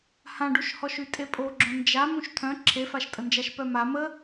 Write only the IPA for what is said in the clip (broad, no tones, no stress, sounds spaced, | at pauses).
h ã ɖ u ʃ h ɔ ʃ y tʼ e pʼ o ɡ͡ǁ õ n d͡ʒ a m ũ ʃ t̪ʰ œ̃ ǁʰ e f a ʃ tʼ ə n d͡ʒ a ʃ p œ m a m ə